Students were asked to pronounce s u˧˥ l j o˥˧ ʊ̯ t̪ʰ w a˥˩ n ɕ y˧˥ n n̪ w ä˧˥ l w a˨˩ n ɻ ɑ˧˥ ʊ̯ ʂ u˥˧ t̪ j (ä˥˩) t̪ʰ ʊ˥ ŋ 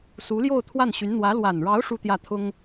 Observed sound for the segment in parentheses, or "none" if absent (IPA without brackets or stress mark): ä˥˩